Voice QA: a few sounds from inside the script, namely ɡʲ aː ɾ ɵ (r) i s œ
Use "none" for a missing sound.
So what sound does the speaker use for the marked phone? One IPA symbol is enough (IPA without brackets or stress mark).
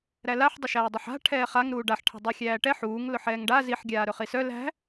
χ